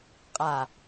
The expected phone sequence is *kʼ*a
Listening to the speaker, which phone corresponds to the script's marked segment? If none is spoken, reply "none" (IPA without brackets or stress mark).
qʼ